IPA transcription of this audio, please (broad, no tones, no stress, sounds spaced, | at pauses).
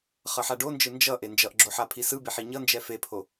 χ ʌ ħ a ɖ o n d͡ʒ ɯ n d͡ʒ ʌ ʔ e n d͡ʒ ʌ ʔ ɡ͡ǁ o ħ a pʰ i s ɯ b e ħ i ɲ ʌ n d͡ʒ ɛ f e pʰ o